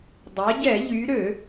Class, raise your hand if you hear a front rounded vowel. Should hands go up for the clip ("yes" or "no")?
yes